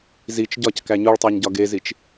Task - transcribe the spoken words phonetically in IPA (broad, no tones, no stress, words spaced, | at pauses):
zit͡ʃ ɟɒckæ ɲuɭtˤæɲɟɒ ɡezit͡ʃ